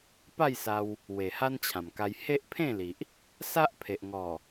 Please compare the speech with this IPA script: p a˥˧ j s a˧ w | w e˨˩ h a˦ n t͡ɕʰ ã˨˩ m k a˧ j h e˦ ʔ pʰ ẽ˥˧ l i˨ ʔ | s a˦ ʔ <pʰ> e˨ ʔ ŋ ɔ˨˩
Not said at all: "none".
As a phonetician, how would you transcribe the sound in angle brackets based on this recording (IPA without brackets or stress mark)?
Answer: pʰ